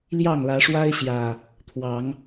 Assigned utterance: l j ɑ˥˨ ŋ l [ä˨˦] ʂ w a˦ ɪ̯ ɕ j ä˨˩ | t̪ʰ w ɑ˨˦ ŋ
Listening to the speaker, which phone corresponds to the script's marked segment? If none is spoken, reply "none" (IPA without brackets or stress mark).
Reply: ä˨˦